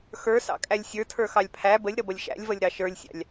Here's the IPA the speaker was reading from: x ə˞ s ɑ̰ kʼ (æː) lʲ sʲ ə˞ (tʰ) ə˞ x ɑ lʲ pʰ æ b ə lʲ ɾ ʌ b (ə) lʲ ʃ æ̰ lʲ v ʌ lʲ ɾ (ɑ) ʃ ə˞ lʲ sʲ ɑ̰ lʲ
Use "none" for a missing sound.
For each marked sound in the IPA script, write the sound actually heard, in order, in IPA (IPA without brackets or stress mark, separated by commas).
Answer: æ, tʰ, ʌ, ɑ